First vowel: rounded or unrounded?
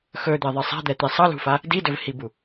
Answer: rounded